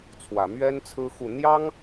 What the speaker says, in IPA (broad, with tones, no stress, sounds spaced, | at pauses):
t͡sʰ w ä˨˩ m ɥ ɛ˥ n t͡sʰ ɹ̩˥ x u˥˩ n̪ j ɑ˥ ŋ